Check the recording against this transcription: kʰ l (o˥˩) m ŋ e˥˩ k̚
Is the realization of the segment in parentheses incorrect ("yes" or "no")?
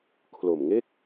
yes